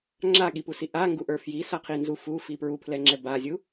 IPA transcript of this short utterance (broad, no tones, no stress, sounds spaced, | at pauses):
ŋ͡ǁ a ɠ i p u s i ʔ a ŋ ɡ u ʔ ə˞ f j i s a qʰ i n z u f u f i p ɹ u pʰ l ɛ ŋ͡ǁ ɛ b a zʲ u